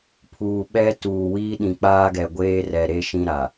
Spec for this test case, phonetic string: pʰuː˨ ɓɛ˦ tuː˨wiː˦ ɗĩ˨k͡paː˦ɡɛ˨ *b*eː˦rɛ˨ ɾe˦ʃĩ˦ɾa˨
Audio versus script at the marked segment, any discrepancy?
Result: yes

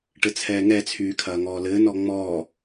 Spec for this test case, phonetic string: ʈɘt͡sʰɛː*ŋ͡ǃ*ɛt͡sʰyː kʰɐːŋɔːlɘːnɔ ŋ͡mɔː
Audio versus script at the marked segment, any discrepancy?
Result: yes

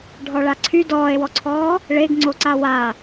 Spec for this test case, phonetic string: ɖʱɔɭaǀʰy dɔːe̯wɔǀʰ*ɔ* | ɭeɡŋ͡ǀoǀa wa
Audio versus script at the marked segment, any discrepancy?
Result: yes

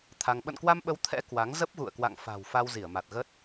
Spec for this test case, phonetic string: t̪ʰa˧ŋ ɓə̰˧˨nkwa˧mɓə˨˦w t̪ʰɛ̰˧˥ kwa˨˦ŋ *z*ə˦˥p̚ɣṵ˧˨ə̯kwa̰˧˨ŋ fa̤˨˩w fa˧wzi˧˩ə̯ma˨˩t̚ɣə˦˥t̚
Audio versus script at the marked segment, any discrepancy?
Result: no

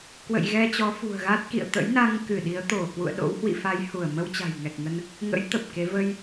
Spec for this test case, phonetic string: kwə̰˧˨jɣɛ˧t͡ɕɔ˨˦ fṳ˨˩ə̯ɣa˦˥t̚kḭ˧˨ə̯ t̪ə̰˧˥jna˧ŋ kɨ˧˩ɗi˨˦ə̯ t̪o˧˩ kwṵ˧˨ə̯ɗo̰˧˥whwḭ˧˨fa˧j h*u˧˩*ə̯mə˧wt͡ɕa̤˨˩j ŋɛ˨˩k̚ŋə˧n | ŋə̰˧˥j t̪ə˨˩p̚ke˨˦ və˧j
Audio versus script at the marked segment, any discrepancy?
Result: no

